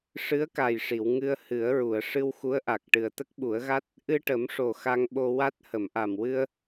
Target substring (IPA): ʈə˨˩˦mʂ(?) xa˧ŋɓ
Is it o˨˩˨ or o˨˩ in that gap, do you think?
o˨˩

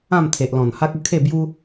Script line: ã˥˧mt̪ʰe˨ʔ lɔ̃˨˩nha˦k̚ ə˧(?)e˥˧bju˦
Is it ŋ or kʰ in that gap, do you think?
kʰ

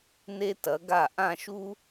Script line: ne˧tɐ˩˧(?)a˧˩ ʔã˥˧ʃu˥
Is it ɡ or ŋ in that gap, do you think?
ɡ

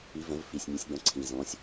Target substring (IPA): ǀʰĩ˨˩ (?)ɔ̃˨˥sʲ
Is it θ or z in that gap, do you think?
z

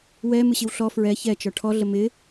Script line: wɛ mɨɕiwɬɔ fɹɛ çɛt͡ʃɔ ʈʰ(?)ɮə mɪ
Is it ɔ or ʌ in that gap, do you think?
ɔ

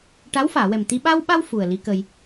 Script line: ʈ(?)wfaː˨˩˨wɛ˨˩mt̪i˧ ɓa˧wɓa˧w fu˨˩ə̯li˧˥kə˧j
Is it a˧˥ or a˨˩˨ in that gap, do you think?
a˧˥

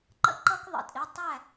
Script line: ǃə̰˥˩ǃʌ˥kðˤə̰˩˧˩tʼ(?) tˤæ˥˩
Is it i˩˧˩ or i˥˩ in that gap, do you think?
i˩˧˩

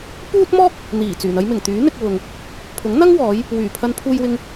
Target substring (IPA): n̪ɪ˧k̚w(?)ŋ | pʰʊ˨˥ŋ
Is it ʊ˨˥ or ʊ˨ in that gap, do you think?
ʊ˨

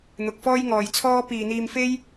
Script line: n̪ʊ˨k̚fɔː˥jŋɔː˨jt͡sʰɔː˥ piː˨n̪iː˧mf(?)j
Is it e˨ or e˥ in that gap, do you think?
e˥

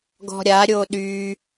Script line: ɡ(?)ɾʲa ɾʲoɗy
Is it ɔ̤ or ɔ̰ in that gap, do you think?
ɔ̤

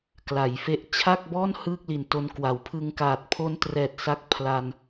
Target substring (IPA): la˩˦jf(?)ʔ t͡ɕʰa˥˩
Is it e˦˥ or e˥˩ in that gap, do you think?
e˦˥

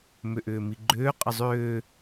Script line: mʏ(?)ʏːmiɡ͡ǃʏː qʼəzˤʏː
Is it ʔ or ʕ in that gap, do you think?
ʔ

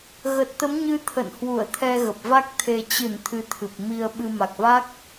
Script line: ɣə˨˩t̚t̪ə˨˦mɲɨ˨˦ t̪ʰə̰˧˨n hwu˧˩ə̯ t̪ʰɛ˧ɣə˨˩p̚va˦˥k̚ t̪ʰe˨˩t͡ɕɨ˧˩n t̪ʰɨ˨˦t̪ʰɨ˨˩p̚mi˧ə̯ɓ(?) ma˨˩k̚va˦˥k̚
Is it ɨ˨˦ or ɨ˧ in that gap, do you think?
ɨ˧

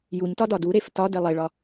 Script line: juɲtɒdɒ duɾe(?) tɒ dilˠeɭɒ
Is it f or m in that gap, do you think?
f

